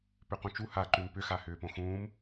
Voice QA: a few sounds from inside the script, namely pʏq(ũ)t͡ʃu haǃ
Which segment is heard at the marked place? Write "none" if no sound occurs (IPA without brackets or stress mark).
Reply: ũ